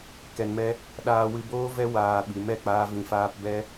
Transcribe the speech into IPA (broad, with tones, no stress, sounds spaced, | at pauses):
k ɛ˧ n m ɛ˦ | ɗ aː˧ w ɨ˧ b oː˦ v ɛ˦ w aː˧ ɓ i˨˦ m ɛ˧ k͡p aː˦ v ĩ˧ f aː˦ p b ɛ˦